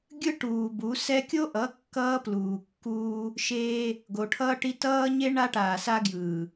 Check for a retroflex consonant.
present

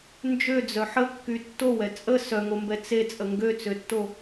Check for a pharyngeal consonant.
present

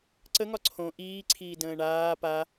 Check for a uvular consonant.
absent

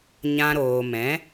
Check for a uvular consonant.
absent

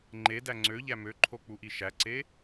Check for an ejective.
absent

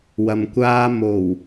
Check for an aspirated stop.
absent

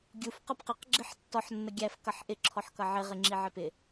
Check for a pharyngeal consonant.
present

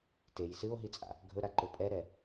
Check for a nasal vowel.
absent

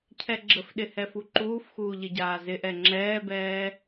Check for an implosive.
present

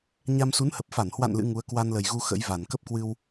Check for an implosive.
absent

